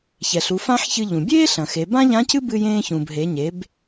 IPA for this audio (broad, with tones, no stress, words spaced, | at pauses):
çɛ˩ɬu˩˧ fã˥ħçɨ˧ʎũ˩ bʲeː˥ɬɐ̃˩xe˩˧ bã˥ʎã˧˥cɨ˥ bɨ˧jẽː˧ çũ˩bɦe˩˧ɲe˩˧b